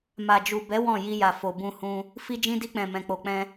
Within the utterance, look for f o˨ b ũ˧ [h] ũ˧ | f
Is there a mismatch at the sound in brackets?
no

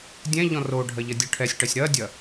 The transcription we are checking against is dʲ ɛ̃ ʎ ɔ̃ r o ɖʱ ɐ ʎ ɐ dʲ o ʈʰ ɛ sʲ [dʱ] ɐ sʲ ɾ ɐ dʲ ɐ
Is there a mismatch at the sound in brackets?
yes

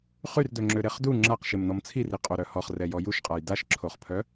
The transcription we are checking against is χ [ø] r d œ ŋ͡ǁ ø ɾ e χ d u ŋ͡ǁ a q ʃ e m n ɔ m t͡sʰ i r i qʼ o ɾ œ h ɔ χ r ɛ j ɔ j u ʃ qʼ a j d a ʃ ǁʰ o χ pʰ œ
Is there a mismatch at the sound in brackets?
yes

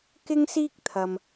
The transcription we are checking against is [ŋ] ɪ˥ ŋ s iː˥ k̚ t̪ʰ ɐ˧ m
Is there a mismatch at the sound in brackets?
yes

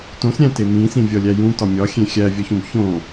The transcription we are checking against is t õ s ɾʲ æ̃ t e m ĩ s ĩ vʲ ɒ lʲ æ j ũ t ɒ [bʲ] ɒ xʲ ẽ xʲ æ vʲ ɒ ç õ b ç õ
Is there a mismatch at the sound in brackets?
yes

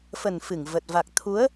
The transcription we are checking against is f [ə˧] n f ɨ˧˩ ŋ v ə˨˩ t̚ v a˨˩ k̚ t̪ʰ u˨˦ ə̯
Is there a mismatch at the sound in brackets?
yes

